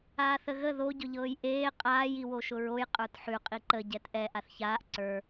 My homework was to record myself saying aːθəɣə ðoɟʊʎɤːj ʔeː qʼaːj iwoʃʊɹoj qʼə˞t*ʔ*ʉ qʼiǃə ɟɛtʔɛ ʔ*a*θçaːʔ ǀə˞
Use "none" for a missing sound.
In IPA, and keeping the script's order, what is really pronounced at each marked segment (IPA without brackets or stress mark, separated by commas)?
ħ, a